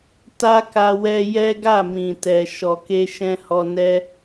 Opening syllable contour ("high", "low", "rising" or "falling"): high